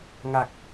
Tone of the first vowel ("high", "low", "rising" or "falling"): low